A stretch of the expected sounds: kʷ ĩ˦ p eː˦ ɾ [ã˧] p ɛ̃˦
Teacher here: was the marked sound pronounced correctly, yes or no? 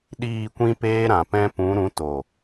no